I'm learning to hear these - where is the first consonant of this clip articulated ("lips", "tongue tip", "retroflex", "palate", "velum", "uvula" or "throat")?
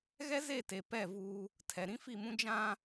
velum